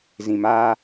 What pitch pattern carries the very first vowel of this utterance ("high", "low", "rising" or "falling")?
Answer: low